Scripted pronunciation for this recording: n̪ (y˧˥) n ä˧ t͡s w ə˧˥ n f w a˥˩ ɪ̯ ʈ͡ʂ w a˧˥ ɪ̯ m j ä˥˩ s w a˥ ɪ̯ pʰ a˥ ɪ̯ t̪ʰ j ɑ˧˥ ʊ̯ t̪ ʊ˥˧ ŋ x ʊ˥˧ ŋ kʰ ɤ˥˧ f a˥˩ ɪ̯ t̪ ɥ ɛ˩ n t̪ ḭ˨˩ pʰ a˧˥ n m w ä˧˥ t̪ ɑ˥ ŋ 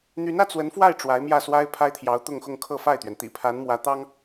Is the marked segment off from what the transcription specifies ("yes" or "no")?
no